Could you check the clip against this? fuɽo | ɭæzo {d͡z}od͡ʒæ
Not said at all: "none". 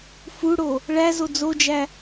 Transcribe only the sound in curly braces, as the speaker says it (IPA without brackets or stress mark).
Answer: d͡z